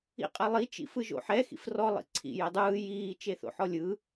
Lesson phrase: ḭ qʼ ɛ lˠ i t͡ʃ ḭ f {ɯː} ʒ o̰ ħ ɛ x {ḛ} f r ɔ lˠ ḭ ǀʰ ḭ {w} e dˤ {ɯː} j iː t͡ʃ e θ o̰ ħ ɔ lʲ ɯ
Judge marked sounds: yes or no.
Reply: no, no, no, yes

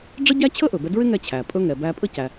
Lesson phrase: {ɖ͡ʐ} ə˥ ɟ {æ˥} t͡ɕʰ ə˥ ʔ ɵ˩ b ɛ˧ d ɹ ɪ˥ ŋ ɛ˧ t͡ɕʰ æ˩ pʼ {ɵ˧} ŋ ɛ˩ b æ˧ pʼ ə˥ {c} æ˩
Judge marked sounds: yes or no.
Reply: yes, yes, yes, yes

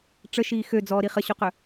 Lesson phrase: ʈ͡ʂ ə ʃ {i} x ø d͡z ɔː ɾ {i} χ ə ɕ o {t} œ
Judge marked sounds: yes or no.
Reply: no, yes, no

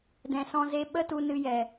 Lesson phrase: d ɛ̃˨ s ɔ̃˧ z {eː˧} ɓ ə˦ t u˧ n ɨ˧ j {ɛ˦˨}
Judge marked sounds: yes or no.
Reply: no, no

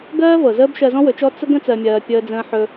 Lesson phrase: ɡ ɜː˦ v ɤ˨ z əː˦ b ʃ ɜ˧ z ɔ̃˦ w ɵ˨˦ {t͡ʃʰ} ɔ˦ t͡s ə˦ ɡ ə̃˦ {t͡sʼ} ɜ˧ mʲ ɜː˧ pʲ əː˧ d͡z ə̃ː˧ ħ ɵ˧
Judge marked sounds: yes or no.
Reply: no, no

